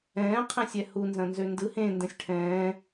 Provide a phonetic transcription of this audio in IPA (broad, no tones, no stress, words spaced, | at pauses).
ɛ̃ːqʰẽ sʲɛhunzɐ̃ nzøndɯ hẽ ndɛ̃sʲʈʰɛ̃ː